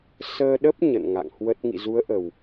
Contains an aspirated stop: no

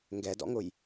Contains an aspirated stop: no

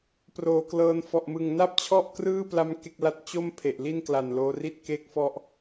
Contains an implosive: no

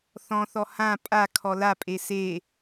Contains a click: no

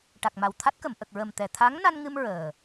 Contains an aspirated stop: yes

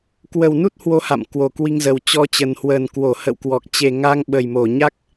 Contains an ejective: no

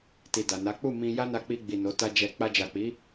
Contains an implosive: no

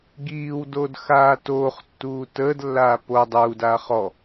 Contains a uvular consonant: yes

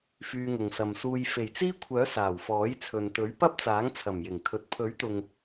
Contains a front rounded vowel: yes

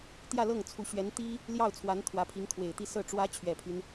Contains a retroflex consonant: yes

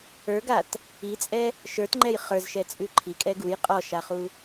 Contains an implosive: no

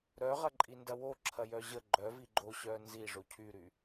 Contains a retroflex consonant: yes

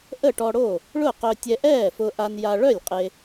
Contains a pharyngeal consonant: no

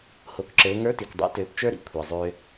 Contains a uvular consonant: no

